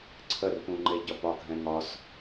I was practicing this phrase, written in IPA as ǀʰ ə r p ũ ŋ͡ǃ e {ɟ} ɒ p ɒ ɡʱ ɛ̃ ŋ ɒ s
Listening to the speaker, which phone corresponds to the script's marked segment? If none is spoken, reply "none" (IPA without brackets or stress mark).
ɟ